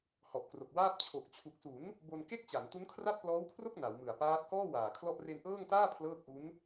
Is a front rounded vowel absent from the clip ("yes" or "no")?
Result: yes